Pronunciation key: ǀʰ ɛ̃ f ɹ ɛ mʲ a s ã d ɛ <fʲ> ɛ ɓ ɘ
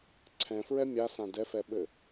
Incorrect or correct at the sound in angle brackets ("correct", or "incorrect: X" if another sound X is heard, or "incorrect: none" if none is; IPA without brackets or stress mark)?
incorrect: f